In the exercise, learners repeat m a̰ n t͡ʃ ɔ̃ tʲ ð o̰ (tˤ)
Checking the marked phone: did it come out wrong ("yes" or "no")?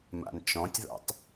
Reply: no